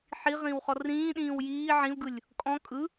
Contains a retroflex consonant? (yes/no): no